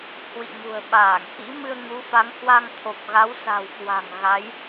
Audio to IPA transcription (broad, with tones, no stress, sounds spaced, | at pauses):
h w ḭ˧˨ ŋ ṳ˨˩ ə̯ ɓ aː˧˩ ŋ k ḭ˧˥ m ɨ˧ ə̯ ŋ u˨˦ f a˨˦ ŋ h w a˧ ŋ t̪ʰ o˨˩ p̚ ɣ a˨˦ w s a̤˨˩ w k w a̤˨˩ ŋ ɣ a˨˦ j